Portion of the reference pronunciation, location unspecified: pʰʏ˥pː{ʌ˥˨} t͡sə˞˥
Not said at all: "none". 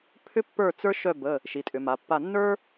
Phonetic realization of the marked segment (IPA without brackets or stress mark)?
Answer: ə˞˥˨